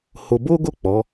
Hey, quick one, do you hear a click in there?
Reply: no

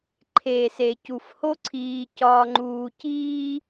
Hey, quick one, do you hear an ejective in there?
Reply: no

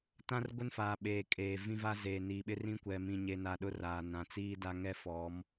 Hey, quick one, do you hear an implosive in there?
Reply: yes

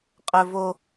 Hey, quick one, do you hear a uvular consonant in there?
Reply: yes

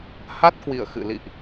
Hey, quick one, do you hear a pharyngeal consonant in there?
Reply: no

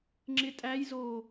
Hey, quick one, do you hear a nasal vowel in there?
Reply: no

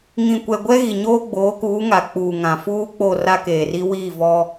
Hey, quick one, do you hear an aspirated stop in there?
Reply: no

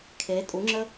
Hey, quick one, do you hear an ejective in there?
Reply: yes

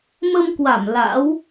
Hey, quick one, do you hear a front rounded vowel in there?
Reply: no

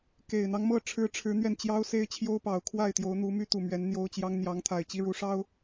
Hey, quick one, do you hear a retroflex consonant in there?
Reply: yes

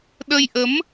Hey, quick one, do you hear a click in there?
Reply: no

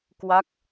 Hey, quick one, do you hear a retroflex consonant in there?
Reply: no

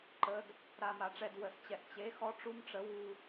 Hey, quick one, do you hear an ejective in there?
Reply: no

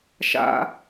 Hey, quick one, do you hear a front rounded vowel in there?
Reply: no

